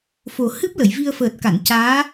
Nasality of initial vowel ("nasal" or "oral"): oral